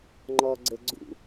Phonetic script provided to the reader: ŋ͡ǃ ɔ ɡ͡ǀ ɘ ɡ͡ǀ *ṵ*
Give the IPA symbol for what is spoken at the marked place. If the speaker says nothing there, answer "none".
ṵ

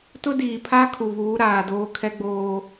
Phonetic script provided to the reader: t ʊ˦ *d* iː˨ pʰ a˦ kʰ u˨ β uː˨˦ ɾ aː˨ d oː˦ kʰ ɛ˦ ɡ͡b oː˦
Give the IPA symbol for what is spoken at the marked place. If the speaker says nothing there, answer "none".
d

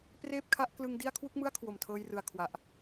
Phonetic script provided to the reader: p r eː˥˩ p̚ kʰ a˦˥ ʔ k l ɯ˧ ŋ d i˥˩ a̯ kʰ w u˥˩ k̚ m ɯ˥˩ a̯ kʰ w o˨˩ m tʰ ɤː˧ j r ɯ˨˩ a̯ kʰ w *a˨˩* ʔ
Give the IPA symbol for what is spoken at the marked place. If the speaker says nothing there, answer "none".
a˨˩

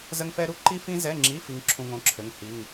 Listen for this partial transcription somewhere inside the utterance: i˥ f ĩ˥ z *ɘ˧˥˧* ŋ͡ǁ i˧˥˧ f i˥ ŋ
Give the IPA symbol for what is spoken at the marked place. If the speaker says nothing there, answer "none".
ɛ˧˥˧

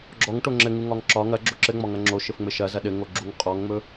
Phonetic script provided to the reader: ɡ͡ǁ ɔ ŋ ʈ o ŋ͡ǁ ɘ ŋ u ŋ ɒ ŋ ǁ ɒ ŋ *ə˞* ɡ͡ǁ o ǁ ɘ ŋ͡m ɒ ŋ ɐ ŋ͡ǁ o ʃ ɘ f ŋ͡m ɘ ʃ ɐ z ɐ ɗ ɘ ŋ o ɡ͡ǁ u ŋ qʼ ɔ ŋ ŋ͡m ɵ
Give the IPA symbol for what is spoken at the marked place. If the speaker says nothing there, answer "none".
ɐ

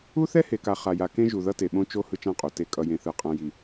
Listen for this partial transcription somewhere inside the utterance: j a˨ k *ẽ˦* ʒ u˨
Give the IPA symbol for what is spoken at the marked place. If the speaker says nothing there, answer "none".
ẽ˦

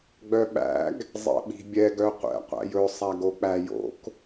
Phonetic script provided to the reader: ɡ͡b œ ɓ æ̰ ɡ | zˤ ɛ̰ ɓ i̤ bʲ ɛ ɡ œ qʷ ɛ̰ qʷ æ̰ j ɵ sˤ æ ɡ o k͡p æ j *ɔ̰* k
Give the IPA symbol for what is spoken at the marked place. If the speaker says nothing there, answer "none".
o̰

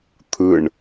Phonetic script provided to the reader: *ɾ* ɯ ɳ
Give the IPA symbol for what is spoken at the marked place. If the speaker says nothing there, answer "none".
t̪ʰ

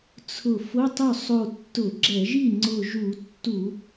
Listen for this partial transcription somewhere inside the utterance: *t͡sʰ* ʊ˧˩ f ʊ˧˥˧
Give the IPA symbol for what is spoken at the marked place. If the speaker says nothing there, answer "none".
t͡sʰ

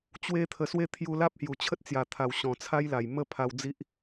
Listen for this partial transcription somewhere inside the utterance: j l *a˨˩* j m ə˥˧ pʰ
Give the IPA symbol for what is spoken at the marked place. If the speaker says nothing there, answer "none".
a˨˩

